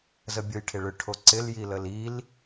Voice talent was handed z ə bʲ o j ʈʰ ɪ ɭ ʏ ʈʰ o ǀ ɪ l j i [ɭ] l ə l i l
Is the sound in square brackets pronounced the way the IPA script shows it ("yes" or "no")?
no